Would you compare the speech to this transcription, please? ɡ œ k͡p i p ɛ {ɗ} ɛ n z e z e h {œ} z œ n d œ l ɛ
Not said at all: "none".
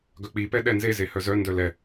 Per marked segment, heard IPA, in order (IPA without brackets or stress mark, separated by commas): ɗ, œ